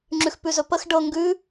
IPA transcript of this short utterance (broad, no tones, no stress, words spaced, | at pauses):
ŋ͡ǁʉxpʉzɵpəx ɖɤ ŋɡʉ